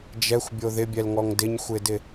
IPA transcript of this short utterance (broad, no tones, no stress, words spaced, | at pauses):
d͡ʒɛxʷbʲo ðɪbʲɛlŋɔŋ dɪɲxʷɪdɪ